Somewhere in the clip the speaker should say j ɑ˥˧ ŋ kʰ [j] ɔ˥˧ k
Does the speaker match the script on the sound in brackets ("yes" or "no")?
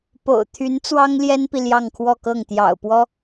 no